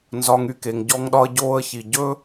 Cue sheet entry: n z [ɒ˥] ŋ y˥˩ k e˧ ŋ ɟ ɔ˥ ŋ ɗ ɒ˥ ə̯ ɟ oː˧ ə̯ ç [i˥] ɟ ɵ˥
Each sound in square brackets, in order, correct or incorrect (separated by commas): incorrect, incorrect